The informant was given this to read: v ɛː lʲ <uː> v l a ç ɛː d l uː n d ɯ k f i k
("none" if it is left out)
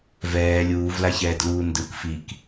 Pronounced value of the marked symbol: uː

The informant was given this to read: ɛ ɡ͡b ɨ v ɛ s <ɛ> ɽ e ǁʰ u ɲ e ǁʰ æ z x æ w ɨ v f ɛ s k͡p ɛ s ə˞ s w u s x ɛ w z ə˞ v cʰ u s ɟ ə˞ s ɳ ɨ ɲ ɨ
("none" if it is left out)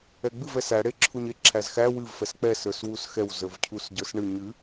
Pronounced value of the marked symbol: æ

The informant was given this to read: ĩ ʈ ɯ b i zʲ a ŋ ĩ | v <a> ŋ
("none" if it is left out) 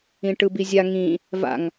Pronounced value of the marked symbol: a̰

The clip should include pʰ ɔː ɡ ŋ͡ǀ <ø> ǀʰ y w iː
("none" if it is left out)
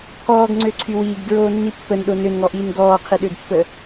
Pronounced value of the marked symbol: ø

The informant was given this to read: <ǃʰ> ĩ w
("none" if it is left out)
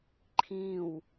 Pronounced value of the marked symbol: ǃʰ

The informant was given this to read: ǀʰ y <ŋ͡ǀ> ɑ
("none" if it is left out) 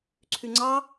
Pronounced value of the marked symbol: ŋ͡ǀ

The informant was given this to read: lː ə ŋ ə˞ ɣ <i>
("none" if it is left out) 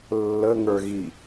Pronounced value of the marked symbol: i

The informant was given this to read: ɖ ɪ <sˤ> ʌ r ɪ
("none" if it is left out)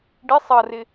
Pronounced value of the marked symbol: sˤ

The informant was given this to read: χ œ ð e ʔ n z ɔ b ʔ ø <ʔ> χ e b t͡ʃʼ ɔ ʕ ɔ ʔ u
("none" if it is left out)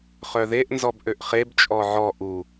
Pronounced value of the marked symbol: ʔ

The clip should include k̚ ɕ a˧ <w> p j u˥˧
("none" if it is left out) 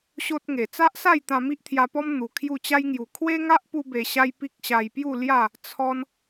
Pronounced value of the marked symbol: j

